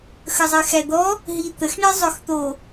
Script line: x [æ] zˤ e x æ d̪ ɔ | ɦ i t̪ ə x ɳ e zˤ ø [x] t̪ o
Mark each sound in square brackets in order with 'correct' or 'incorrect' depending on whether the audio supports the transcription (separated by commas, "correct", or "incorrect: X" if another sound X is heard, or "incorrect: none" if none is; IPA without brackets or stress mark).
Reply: incorrect: ə, correct